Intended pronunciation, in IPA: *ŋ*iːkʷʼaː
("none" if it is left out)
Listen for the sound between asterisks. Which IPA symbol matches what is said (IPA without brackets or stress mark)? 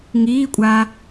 ŋ